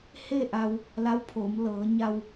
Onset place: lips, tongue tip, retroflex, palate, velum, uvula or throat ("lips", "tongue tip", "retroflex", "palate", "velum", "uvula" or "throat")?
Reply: throat